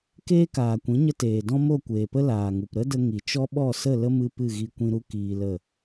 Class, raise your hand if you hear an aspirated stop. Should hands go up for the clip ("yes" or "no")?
no